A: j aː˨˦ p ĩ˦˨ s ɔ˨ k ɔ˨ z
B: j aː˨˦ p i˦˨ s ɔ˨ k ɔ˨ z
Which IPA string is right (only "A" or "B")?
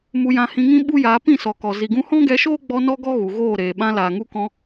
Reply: A